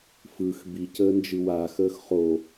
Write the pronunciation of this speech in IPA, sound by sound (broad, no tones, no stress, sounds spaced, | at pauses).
f ɯ x b i c əː n d͡ʒ ɯ w a x əː x χ o